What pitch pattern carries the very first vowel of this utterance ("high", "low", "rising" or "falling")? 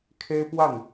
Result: high